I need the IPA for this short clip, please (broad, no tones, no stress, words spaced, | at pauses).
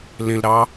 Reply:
lẽlɾɑ